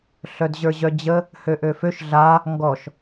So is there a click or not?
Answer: no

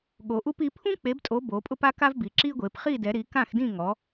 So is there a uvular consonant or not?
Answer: yes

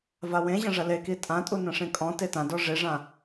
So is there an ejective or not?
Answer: yes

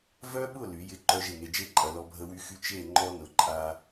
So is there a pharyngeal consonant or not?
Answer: no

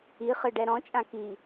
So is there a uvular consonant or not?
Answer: yes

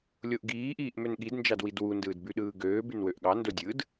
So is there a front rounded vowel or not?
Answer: yes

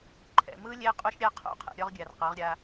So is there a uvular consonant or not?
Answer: yes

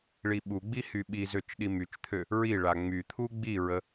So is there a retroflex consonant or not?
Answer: yes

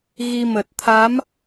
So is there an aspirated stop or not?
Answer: yes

